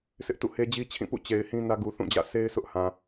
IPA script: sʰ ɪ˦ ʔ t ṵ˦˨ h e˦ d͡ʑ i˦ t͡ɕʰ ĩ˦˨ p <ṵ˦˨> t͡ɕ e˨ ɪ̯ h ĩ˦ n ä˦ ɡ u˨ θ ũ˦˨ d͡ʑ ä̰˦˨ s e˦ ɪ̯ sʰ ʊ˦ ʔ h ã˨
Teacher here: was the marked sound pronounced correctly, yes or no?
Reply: yes